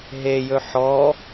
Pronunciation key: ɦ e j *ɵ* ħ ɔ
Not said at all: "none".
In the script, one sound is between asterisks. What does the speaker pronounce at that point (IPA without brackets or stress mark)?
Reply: ɵ